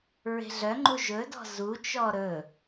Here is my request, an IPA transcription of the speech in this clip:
ɹ e̤ ɮ œ ŋ͡ǃ u ʒ ɵ d ɔ̤ z u t͡ʃ ɔ ɾ ɵ

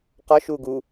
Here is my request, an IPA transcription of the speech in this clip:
q ɒ ʃ uː ɡ u

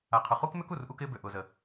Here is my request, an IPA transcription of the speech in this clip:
a˨ qʰ ʊ˨ χ u˥ k m ø˥ k u˩ r ʔ u˦ k ɪː˦ b ø˨ ʔ ʊː˨ z ə˨

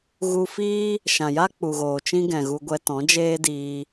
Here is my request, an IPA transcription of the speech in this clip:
ɣ u˧ f iː˦ | ʃ ã˨ j a˦ k͡p u˨ ɣ oː˨ t͡ʃ ĩ˦ ɡ ɛ̃˨ ɣ u˧ ɡʷ ɛ˧ t ɔ̃˨˦ d͡ʒ eː˦ d iː˧

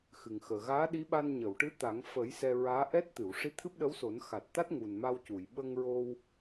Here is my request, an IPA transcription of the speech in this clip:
x ɨ˨˩ ŋ x əː˨˩ ɣ aː˧˥ ɗ i˧˥ ɓ a˧ n ɲ ə˨˩˨ w ʈ ɨ˧˥ t̪ a˨˩˦ ŋ f ə˨˩˦ j s ɛ˧ ɹ aː˧˥ ʔ ɛ˦˥ t̚ t̪ ɨ˨˩˨ w ʂ i˧˥ t̪ʰ ɨ˦˥ p̚ ɗ ə˧˥ w s o˨˩˦ n x a˨˩ t̚ t̪ a˦˥ t̚ ŋ u˨˩ n m a˧ w c u˨˩˨ j ɓ ə˧ ŋ ɹ o˧ w

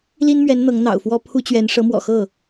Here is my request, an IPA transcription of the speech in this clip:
l i˥ n m ɥ ɛ˧˥ n n̪ ɤ˧˥ ŋ n̪ ɑ̰˨˩ ʊ̯ f w ɔ˥ pʰ u˥ t͡ɕ ɥ ɛ˧˥ n ʂ ɤ˧˥ m w ɔ̰˨˩ x ɤ˥˩

